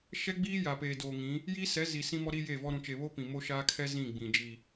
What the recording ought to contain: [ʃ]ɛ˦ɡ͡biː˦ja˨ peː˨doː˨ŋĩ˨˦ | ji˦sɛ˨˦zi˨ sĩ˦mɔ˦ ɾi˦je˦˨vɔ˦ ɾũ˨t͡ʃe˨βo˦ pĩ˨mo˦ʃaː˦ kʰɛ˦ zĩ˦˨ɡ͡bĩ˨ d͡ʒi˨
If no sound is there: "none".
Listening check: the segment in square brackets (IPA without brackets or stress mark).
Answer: ʃ